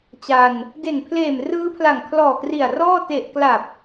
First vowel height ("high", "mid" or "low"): low